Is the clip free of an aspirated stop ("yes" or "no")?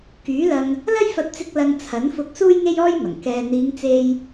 no